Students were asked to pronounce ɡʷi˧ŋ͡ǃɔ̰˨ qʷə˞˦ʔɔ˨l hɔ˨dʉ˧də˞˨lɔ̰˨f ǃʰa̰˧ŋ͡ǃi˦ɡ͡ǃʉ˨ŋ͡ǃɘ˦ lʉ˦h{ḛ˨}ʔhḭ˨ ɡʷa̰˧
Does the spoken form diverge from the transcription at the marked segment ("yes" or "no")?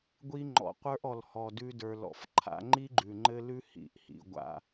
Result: yes